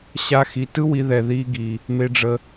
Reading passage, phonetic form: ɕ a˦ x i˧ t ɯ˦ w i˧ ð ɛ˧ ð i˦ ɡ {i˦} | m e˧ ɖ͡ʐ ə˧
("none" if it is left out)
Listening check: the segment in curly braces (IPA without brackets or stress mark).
i˧